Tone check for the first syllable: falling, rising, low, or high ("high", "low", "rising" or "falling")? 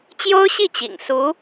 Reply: high